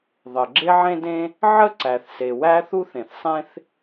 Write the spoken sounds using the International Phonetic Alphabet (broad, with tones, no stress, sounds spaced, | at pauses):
ðˤ ə˩ ɡ͡ǁ e˥ ʕ ẽ˥ d ẽ˥ | ʕ ə˥ ǀ æ˩ θ s e˩ w æ˥ θ u˥ θ ẽ˩ θ sˤ ẽ˥ θ